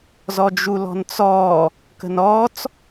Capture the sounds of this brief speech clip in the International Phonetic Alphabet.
z ɔ d͡ʒ u l ɔ̤ n t͡s ɔː | k ə̤ n ɔː t͡s

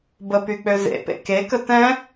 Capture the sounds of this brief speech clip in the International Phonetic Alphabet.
b ə p y k͡p ø z ḛ p ḛ k e k ə t ɛ̃

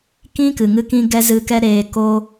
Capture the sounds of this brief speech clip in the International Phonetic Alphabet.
k ĩ˦ k ɨ˨ ŋ ɨ˦ k ĩ˦ ɡ ɛ˦ z ɨ˧ k ɛ˦ ɾ eː˧ k o˦

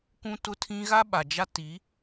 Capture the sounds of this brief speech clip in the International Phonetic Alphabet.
k ũ˦ t ʊ˦ tʰ ĩ˦ ɣ a˦ ɓ a˨ d͡ʒ a˦ t i˨˦

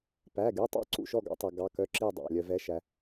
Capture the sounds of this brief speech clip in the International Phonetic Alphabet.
p æ˩˧˩ ɡ y˩˧˩ tˤ ɑ̰˥˩ ǀ ṵ˥˩ ʃ ɔ˥˩ ɡ ɑ̰˨˦ tˤ ɛ˩ ɡ ɑ˩˧˩ k œ˩˧˩ ǁ i˥˩ dˤ ɑ̰˩˧˩ lʲ œ˩ v ɛ˩˧˩ ʃ æ˩

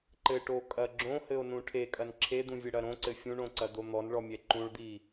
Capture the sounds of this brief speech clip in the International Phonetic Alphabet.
ǃ ɘ ʈ o kʼ ɐ ɡ͡ǁ õ h ɘ o̯ n ũ ʈʰ e kʼ ɐ n ǁʰ e d̪ ũ vʲ ɘ ɽ ɐ ɾ õ ǀ ɘ fʲ ũ ɳ õ ǀ ɐ d̪ o n̪ ɔ n ɭ ɔ mʲ ɛ ǃ ũ ɭ d̪ i

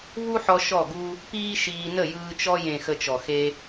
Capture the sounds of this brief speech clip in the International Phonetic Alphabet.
v u˦ ħ ɔ˧ ʃ ɔ˦˨ ɡ u˦ | p iː˦ ʃ iː˧ n ə˦˨ j ɯː˧ t͡ʃ ɔ˧ j ẽ˨ x ə˧ t͡ʃ ɔ˨ x e˧

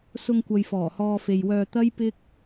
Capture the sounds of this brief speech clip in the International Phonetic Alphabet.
s ʊ˧ ŋ kʷ ɐ˨ j f ɔː˨˩ h ɔː˧ f e˨ j w œː˧ t̪ ɐ˥ j p ɪ˥ k̚

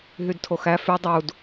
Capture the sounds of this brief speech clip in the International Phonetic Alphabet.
ɦ y d tʰ o x æ f y dˤ u d

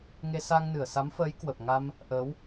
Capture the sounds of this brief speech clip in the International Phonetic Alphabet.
ŋ e˧ s a˧ ŋ n ɨ˧˩ ə̯ s a˨˦ m f əː˨˦ j k w ə˨˩ p̚ ŋ a˧ m | ʔ əː˨˦ w

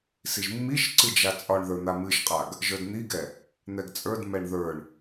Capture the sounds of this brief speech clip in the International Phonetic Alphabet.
s i ʒ mː i ʃ ǀ ɨ d͡ʒ a t͡sʼ ɒ ɳ ð ə˞ n̪ a m ɨ ʃ qʼ a ɡ | ʒ ə˞ d n̪ i ɡ ɛ | n̪ ɛ ɡ t͡sʼ ə˞ d m ɛ ɳ ð ə˞ ɳ

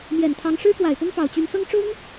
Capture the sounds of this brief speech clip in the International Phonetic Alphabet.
m j ɛ˨˩ n t̪ʰ ɑ˧˥ ŋ ʂ ɻ̩˥ k w a˨˩ ɪ̯ p ʊ˥ ŋ p ɑ˨˩ ʊ̯ t͡ɕ y˧˥ n s ɤ˥ ŋ ʈ͡ʂ ʊ˥ ŋ

